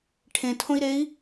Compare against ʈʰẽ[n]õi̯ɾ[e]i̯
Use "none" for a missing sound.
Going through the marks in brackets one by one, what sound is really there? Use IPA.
tʰ, e

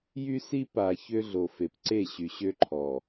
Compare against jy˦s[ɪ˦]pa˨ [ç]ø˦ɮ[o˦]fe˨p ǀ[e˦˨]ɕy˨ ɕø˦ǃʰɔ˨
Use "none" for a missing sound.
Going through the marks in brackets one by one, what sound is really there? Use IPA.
i˦, ç, o˨, e˦˨

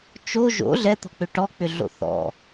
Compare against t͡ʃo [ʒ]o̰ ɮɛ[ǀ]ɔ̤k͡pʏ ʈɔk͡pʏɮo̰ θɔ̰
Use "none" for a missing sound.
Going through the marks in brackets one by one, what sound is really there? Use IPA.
ʒ, t̪

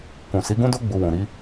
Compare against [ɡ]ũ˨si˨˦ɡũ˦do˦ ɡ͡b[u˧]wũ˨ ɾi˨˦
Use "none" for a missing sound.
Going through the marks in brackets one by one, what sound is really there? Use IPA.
k, u˧

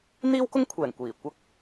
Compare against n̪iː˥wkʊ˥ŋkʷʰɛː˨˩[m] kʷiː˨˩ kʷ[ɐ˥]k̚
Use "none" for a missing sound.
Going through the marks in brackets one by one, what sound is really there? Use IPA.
ŋ, ɐ˥

